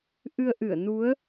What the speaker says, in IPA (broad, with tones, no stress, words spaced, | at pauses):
ʔɨ˧ə̯ʔɨ˧˩ə̯nu˨˦ə̯